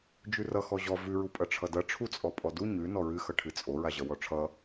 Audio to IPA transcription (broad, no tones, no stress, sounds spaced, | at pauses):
d͡ʒ ʉ r ʌ x ɔ ʑ ɔ v ʉ ɹ u pʼ ʌ ʈ͡ʂʰ ʌ d ʌ ʈ͡ʂʰ u t͡sʼ ɔ pʼ ɔ d u ɲ ʉ n ɔ ɹ ɨ x ʌ ʈʰ ɨ t͡sʼ o ɹ a ʑ ʌ w ɔ ʈ͡ʂʰ ʌ